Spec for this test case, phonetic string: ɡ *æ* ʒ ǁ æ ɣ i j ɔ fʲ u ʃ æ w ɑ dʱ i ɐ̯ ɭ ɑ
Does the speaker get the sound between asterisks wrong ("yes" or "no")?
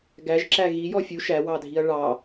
no